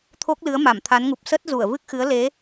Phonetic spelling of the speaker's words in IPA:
t̪ʰ o˦˥ k̚ l ɨ˨˦ ə̯ m a˧˩ m t̪ʰ a˨˦ n ŋ u˨˩ p̚ s ə˦˥ t̚ z u˧˩ ə̯ v ɨ˦˥ k̚ x ɨ˨˦ ə̯ l e˨˦

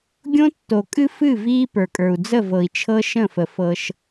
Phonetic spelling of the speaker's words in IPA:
ɡʲ õ˦ tː o˨ kʼ ɨ˦ f ɨ˦˨ v iː˦ p ə˞˨ kʼ ə˞˨ u̯ d͡z ə˦˨ v ɤ˨ i̯ t͡ʃʰ ɤ˦ ʃ ə̃˦˨ f ə˨ f ɤ˦ ʃ

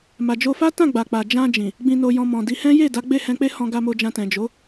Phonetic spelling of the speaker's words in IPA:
m a˨ d͡ʒ o˧ f a˦ t ã˦˨ ɡ͡b a˨ k͡p a˨ d͡ʒ ã˧ d͡ʒ ĩ˨ | ɡ͡b ĩ˧ n o˧ j ɔ̃˧ m ɔ̃˨ d i˧ h ɛ̃˦ j e˦˨ d a˨˦ ɡ͡b e˦˨ h ɛ̃˧ k͡p e˦ h ɔ̃˧ ɡ a˧ m o˧ d͡ʒ ã˧ t ɛ̃˨ d͡ʒ o˨˦

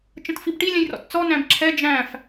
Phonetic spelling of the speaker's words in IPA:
t͡ʃ ə̃ t f i b ʈ i lʲ ɛ̃ j r ɔ̰ t t͡s ɔ n æ̃ b ǁʰ ɛ d͡ʒ æ̃ f

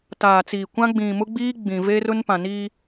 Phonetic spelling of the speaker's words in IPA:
t aː˨ t͡s iː˨ kʷ ã˦ ɡ͡b ĩ˨ m ʊ˦ ɡ͡b iː˦ ɡ͡b ĩ˨ v eː˦ r ʊ˦ n p ã˨ n iː˦

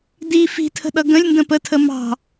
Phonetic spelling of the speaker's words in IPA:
d i f i̤ tʰ ə̤ ɗ ʌ ɡ ə̃ lʲ n d ə̃ p ə tʰ ə m ɑ̤

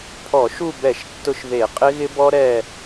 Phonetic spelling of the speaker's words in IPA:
pʰ ɔ˧˩˧ ʃ u˦˨ b ɛ˧˩˧ ʃ tː ʊ˦ ʃ ð e˧˩˧ qʼ ɪ˦ ɣ ɪ˦ b ɔ˦ ɾ ɛ˦˨

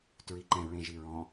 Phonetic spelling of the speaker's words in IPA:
t ɹ i ǃ ɛ̃ ɹ ẽ ʒ i ɹ ɔ̃

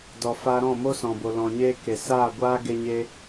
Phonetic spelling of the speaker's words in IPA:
d ɔ˨ f a˧ ɾ ɔ̃˦˨ m o˦ s ɔ̃˨ b o˨ l ɔ̃˨ ɲ eː˦ k e˨ s aː˦˨ ɡʷ aː˦ ɡ e˧ ɲ e˧

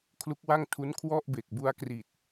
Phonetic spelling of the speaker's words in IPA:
kʰ l u˦˥ k̚ w a˥˩ ŋ tʰ u˦˥ n kʰ w ɔ˥˩ ʔ b e˨˩ k̚ b u˦˥ a̯ k r i˨˩ t̚

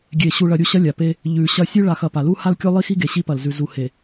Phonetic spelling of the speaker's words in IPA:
ɡʲ e˨ ɕ u˨ ɭ ɐ˨ ɾʲ u˦˨ ɕ ɐ˦ lʲ a˨ p e˦ | ʎ ʉ˨ ɕ ɐ˦ sʲ ʉ˦ ɭ a˨ x ɐ˨ p a˨ l u˦ h a˦ l kʲ o˦ lˠ i˦ x i˦ ɡ e˨ ɕ i˦ p ɐ˨ l z ʉ˨ z u˨ h e˨

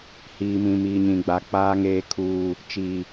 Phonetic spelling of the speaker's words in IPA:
h iː˨ m ĩ˨ m iː˨ ɲ ĩ˨ ɡ͡b a˨ k͡p aː˨ ŋ eː˨ kʰ uː˨ | t͡ʃ iː˨

